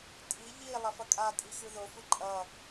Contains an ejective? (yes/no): yes